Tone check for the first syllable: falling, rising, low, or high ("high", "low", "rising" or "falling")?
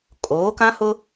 rising